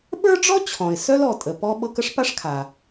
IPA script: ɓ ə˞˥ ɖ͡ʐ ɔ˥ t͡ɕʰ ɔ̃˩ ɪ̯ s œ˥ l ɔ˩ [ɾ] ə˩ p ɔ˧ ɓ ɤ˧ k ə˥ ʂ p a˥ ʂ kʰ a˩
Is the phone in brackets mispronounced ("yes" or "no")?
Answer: yes